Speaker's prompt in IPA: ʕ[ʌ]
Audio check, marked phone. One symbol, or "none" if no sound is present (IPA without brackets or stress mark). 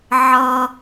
ʌ